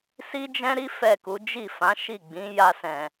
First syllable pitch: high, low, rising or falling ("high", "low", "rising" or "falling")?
high